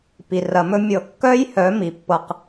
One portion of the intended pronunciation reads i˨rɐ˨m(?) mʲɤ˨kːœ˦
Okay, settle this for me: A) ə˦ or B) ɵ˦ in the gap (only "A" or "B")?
B